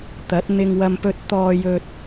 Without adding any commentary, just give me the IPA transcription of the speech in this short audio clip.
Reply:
t̪ ɐ˨˥ t̚ n̪ ɪ˧ ŋ w ɐ˧ m p ɵ˧ t̚ t̪ ɔː˧ j ɵ˧ t̚

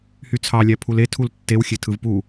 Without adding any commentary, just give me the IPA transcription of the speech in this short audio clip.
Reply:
h y t͡sʰ ɑ lʲ æ pʰ u l e tʰ u l tː e w xʲ e tʰ ɯ v p u

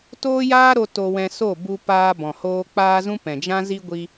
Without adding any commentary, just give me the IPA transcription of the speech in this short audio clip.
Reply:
t oː˦ j aː˦ ɾ o˧ t o˧ w ɛ̃˧ s o˦˨ b u˧ p aː˧ b ɔ̃˨ h oː˧ k͡p aː˦ z ũ˦ p ɛ̃˨ d͡ʒ ã˦ z i˦ ɡʷ i˧

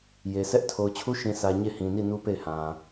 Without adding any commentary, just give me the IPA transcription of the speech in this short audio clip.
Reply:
j e˨ sʰ ɛ˦ ʔ tʰ o˨ ʊ̯ t͡ɕʰ u˦ ʃ ĩ˨ sʰ ä˨ ɲ e˦˨ h ĩ˨ n i˦˨ n u˦ p e˦˨ ɪ̯ h ã˨

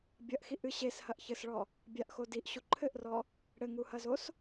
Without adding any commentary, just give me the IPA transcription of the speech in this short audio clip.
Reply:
bʲ ɐ ʔ x i ʔ ɨ ɕ e s h ɐ ʔ ç ɘ s ɭ ɔ | bʲ a ʔ x o d i ʔ ɕ u ǃʰ ɘ ʔ r ɔ | ɽ ɘ ŋ u h ɐ z o s

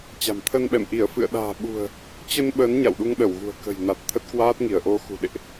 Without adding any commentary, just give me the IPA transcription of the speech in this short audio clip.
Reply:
t͡ɕ a̤˨˩ m t̪ʰ ə˧ n ɓ ɛ̰˧˨ m ʔ i˧˩ ə̯ f ɨ̰˧˨ ə̯ ɗ a̤ː˨˩ ɓ ṳ˨˩ ə̯ | t͡ɕ ə˧ n ɓ ə˨˦ n ɲ a̰˧˨ w ɗ u˧ ŋ ɗ ə˧˩ w ɣ ṳ˨˩ ə̯ k ə̤˨˩ j n a˨˩ t̚ t̪ʰ ə˦˥ t̚ k w aː˦˥ t̚ ŋ i˧˩ ə̯ ʔ o˧ x ṳ˨˩ ɗ ḛ˧˨ ʔ

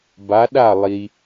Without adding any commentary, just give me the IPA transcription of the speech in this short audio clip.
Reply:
b a˨˦ ɗ a˦˨ lˠ i˨

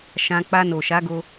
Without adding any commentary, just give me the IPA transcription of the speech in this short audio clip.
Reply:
ʃ ã˧ k͡p a˧ n o˨ ʃ a˨˦ ɡ o˧

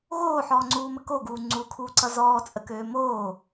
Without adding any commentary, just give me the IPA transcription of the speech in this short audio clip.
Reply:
ɣ oː ħ ɔː ŋ͡ǀ uː m ə k o ɡ uː ŋ͡ǀ u kʰ uː ǀ ʌ z ɔː t͡sʼ ə k øː m oː

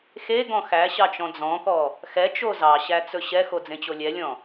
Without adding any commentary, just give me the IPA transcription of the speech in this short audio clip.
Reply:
x e ɡ ɔ̃ x æ ɕ ɑ t͡ʃ ɔ̃ d͡z ɔ̃ k ɔ | x ɛ t͡ʃ o z ɑ ɕ æ t͡s ɵ ɕ ɛ x o d͡z ẽ t͡ɕ o lʲ ɛ lʲ ɔ̃

